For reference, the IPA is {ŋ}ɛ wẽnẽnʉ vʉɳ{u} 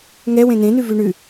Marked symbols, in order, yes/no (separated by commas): yes, no